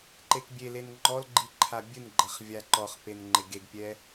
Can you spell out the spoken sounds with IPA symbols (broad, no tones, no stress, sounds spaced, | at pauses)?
ǃ e k bʲ e l e n ŋ͡ǃ ɔ l ɡ͡ǃ i ǃʰ a bʲ ɨ n ɡ͡ǃ ɐ χ vʲ a ǃ ɔ χ p e n ŋ͡ǃ e ɡ e ɡ pʲ ɛ